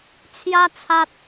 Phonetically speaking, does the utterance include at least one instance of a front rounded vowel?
no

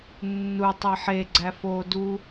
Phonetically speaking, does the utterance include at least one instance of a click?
yes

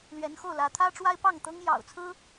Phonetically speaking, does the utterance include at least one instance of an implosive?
no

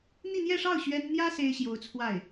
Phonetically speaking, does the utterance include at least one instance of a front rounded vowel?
no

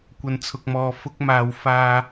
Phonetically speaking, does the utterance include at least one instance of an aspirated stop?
yes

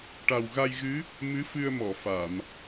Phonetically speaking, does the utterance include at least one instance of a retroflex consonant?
yes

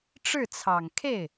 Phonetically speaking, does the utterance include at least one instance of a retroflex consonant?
yes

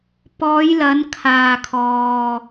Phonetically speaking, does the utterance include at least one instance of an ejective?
no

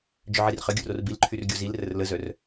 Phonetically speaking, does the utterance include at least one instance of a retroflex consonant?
no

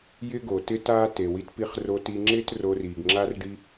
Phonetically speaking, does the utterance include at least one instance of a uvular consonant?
yes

